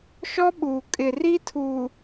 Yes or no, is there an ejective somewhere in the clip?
yes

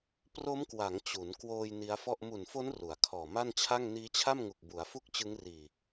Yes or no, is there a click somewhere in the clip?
no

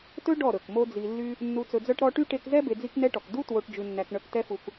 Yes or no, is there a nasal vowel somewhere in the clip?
no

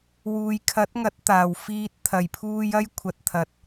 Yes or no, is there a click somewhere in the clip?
no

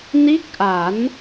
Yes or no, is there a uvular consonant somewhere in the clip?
no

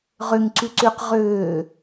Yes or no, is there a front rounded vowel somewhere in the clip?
yes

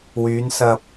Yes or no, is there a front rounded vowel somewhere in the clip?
yes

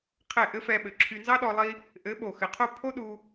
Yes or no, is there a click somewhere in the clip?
yes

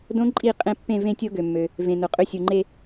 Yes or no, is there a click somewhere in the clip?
yes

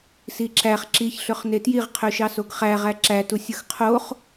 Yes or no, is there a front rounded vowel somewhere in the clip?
yes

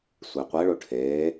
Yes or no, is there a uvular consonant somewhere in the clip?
yes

